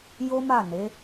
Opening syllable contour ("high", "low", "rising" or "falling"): high